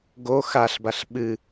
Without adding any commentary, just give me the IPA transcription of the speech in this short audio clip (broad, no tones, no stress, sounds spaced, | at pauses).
ɡ o x a ɬ b a ɬ ɓ ɨ